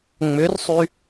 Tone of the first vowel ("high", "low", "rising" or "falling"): rising